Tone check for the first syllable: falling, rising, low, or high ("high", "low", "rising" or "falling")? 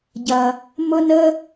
low